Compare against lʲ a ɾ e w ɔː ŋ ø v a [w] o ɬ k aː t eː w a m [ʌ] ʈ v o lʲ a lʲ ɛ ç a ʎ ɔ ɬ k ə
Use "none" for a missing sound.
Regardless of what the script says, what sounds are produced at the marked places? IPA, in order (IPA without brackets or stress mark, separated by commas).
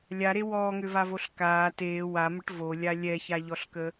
v, ə